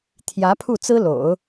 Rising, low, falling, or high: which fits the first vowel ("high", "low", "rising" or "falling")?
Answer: rising